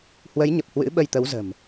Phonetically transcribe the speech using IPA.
h w ə˨˦ j ɲ ə˨˩ p̚ h w ɨ̰˧˥ ɓ ə˧ j t̪ ə˨˦ w z ə̤˨˩ m

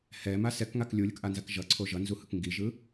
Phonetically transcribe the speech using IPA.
h ɛ m a s ɛ k ŋ a k lʲ u lʲ ɯ k ʔ a n z a k ʒ ʌ ǀʰ o ʒ ʌ n z u h ɯ k ŋ ɡ i ʒ ɯ

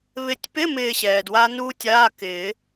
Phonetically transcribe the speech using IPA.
β ɪ˨˩˦ tʲ p ɪ˧˥˧ m ɪː˦˨ ɕ ɛː˩ d w a˦˥ n uː˦˥ tʲ aː˧˥˧ k ɪː˨˩˦

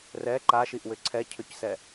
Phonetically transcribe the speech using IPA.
r ɛ ǃ a ʃ i ʔ w ʏ ǀʰ ɛ cʰ ʏ c s ɛ

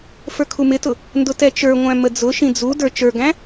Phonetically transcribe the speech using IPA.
f ə˞ kʰ u m ɪ t ʊ | n d ʊ t ɛ t͡ʃ ə˞ ŋʷ æ̃ m ə d͡z ʊ ʃ ĩ d͡z u d ə˞ t͡ʃ ə˞ ɡ æ̃

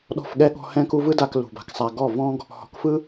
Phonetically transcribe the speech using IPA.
ɗ ɔ̤˦˨ f ɠ ɛ˦ ɠ ɔ̤˧ h ɛ̃˦ k u˦ v ɯ˦ d a˧ k l ṳ˨ b a̤˧ k sˤ a˧ ɡ ɔ˦˨ v ɔ̃˦ ɡ | h ɔ̤˨˦ k f ɯ˦

